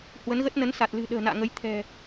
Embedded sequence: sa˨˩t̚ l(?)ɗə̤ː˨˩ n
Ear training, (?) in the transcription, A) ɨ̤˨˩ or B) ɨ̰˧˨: A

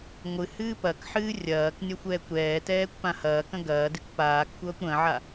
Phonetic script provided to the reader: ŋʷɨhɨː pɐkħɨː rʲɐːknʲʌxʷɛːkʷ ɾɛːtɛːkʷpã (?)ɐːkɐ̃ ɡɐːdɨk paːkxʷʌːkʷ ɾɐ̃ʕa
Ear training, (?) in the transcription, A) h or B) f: A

